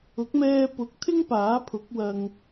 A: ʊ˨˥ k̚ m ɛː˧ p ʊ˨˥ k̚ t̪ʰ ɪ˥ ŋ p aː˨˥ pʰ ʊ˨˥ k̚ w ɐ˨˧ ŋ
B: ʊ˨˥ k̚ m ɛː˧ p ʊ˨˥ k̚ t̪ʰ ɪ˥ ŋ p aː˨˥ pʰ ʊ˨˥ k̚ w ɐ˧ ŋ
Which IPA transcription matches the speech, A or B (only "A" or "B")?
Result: B